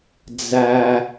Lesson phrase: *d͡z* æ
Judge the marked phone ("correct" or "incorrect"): correct